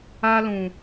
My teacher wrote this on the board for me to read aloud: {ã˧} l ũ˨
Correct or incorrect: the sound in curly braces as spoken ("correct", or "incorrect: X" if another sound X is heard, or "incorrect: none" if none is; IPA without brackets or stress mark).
incorrect: a˧